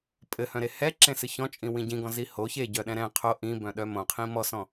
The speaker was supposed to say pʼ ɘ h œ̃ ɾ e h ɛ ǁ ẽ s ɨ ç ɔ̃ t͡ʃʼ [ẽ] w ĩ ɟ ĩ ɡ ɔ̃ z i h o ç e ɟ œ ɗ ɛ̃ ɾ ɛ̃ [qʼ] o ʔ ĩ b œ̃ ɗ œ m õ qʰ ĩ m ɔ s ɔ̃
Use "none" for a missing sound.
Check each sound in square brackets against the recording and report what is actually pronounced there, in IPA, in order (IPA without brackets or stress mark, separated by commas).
ĩ, qʰ